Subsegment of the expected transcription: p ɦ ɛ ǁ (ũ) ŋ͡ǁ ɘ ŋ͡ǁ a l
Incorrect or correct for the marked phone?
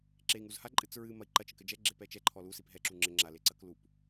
incorrect: u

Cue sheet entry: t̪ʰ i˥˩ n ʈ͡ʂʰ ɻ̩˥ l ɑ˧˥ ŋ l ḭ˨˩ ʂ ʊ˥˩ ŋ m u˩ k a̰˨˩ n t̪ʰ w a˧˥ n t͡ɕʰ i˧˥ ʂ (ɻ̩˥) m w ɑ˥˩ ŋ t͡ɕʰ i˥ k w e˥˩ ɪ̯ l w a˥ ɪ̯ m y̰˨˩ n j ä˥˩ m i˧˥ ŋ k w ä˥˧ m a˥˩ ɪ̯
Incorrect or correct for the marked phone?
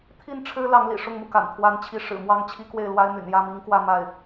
incorrect: ɻ̩˨˩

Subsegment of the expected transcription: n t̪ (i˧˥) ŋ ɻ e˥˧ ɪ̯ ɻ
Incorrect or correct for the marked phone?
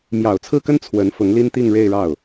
incorrect: i˥˧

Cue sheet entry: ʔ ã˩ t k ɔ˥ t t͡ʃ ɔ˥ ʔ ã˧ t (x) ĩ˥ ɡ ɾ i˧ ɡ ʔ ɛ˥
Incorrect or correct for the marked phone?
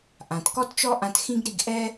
correct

